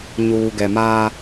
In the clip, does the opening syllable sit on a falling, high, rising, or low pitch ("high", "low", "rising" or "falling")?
low